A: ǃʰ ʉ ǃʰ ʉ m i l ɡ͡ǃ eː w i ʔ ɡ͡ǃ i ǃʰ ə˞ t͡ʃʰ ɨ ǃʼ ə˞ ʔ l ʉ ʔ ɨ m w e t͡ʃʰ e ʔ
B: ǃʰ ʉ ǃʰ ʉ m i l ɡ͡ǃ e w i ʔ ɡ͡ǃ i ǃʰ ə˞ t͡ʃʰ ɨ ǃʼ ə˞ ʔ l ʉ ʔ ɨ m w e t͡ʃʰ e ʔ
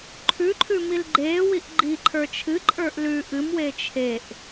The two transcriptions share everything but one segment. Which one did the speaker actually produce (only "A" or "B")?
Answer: A